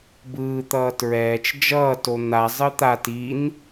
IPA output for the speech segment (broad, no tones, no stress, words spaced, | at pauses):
bɯːt̪ʌː tɹɛːt͡ʃ d͡ʒʌːto n̪a zˤɯt̪a tin